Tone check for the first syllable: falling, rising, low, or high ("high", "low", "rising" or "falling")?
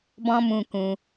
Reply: high